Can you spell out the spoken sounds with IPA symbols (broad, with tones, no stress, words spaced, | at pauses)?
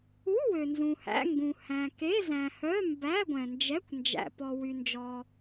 u˧˥˧ wø˨nzũ˨hæ̰˧˥˧ ŋɡũ˨ hæ̃˨ke˧˥˧ zæ̃˨hœ˧˥˧ mbæ˧˥˧ɡʷɛ̃˨nd͡ʒɛ˧˥˧kʷ nd͡ʒæ̰˨pɔ˨ wy˨nd͡ʒɔ˨